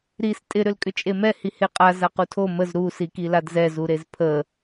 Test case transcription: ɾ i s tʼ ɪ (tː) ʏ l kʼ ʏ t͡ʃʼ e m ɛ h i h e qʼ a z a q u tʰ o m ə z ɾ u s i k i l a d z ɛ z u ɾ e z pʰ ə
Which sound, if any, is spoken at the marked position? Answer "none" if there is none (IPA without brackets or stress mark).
ɾ